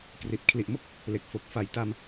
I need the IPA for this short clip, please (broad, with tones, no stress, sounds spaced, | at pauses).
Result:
k r i˨˩ t̚ kʰ l i˨˩ ʔ m o˥˩ k̚ | l e˨˩ k̚ f o˨˩ k̚ f a˨˩ j t a˧ m